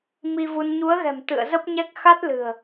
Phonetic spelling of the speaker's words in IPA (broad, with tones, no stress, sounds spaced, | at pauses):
m i˧ v u˧ n ɲ u˨˦ ə̯ ɣ ɛ̤˨˩ m t̪ ɨ̰˧˨ ə̯ z ə˦˥ p̚ ɲ ɛ˦˥ k̚ x a˦˥ t̚ l ɨ̤˨˩ ə̯